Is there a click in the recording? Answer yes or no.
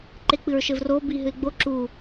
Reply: yes